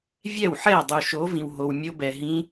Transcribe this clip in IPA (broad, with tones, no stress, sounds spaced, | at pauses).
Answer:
vʲ ɛ˥˩ w ħ ɛ˥˩ ə̯ dˤ u˨ ʃ o˨˥ v ĩ˨ w ɦ o˨ w mʲ o˦˥ b ɛ˨ ɦ ĩ˦˥